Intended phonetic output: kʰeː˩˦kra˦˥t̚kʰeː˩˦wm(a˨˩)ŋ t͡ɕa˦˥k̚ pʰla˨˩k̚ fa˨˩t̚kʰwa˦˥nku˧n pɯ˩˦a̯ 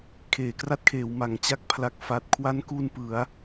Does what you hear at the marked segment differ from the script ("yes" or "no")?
no